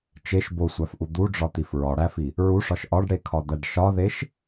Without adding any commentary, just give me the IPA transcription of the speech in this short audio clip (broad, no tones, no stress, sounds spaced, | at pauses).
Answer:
t͡ʃ e ʃ b o sʷ æ f ʔ u d̪ u ɖ͡ʐ ɒ t̪ i f ɹ ɒ ɽ æ f i | ɹ u ʂ ɒ ʃ ʔ ɒ ɖ ɽ e kʰ ɒ d̪ æ ɖ ʃ ɒ ð e ʃ